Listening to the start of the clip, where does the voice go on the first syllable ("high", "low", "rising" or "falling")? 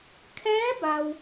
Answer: rising